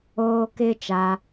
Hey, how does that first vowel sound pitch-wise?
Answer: high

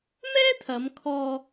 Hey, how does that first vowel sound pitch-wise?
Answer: high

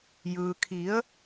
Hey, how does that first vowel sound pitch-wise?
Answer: low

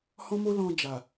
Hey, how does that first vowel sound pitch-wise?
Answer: high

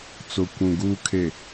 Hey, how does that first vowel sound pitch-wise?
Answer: low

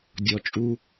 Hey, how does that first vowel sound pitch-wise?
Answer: low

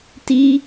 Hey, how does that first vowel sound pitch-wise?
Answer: high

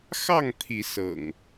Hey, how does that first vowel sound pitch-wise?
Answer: falling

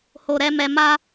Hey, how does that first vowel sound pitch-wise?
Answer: low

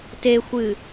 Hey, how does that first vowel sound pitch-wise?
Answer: low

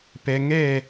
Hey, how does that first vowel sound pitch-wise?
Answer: low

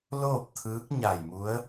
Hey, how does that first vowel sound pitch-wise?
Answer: falling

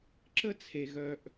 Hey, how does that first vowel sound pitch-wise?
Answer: high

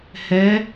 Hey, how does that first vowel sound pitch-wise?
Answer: rising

